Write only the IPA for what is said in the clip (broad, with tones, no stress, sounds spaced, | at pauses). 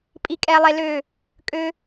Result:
pʼ i˧ kʼ ɛ˧ lˠ e˧ l ø˧˩ | kʼ ø˧